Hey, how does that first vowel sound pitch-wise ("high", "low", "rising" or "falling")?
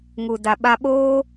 low